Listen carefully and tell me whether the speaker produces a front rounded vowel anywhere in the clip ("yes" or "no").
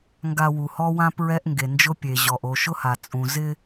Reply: no